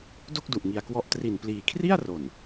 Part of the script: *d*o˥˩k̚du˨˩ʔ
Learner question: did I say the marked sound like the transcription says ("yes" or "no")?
yes